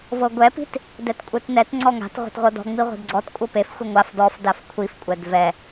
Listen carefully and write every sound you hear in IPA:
vɤɡʷɛpi̤t | dɛtkʷʼetnɛt ŋ͡ǀɔŋa̤t ʁʷe̤tʁʷɤdɔ̤ ŋ͡miʁʷe̤dɡ͡ǀɔt kʷʼɤpefxʷi ŋʷaf dɔf dafkʷʰifkʷʼɛd vɛ

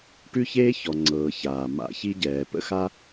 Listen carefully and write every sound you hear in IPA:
ʈʉ˥çeː˥çɔ˩ŋ͡ǀɤː˩ çaː˩ ma̰˨ çi˦ɟɛː˩ pə̰˥xa˥

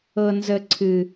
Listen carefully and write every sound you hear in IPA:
ɤ˨nzə˨ ǀʰɨ˨

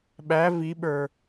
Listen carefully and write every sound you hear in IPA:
ɓæ viɓə˞

